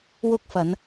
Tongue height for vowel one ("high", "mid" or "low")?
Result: high